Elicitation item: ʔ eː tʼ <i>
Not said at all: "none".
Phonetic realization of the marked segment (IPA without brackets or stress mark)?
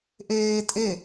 e